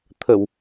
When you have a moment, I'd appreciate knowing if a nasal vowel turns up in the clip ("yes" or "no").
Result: no